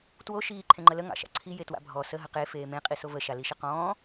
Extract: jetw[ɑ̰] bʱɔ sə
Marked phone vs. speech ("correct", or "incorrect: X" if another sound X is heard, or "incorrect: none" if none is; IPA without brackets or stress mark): incorrect: a̰